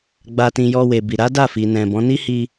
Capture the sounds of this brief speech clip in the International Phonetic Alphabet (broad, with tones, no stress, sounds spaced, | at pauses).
ɡ͡b a˧ t ĩ˧ j ɔ˧ w e˨ b i˨ ɾ a˨˦ d a˦˨ f i˨ n ɛ̃˨ b ɔ̃˨˦ n i˦ h i˧